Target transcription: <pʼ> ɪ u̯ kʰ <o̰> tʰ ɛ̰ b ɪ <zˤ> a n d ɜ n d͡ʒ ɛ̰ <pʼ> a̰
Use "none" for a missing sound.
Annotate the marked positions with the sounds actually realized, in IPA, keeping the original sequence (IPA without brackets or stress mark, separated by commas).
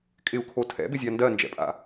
kʼ, o, zʲ, pʼ